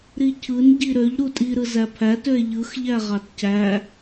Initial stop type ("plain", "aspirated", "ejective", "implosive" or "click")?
aspirated